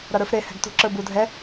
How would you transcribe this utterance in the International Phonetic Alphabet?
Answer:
ɾ ʌ ɾ ə˞ f ɾ e h ɛ̤ ɡ t ṳ ǁ ə˞ b u dʱ ɛ

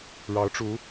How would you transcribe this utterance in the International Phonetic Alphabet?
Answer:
ɻ ɑ˧˥ ʊ̯ ʈ͡ʂ u˧˥

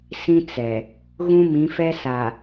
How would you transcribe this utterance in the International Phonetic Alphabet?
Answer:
s ĩ˦ t͡s ɛ˨ | ɣ ũ˦ m ĩ˨˦ f ɛ˦ s a˨

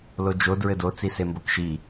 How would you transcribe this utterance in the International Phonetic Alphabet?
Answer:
l o d͡ʒ o d ɹ ɘ d o t͡s i s e m b o k ʃ i

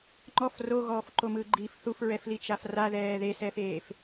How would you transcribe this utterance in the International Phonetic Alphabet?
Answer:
ŋ͡ǃ ɔ f r o ɣ ɔː f ǃ o m ɯː ɡ͡ǃ i f θ u f ɹ ɛ f l i t͡ʃ a f r a ð ɛː ð e s ɛː f eː f

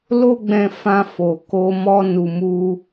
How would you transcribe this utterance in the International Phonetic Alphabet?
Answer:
l o˦ ɡ͡b ɛ̃˧ f ã˧ f o˨ k o˧ m ɔ˧ n u˨ m u˧

